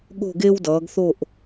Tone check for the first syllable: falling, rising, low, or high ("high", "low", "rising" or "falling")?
falling